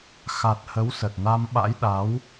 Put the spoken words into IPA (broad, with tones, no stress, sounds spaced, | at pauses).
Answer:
x a˨˩ t̚ h ə˨˦ w s ə˨˩ t̚ n a˧ m ɓ a̰˧˥ j ɗ a˨˦ w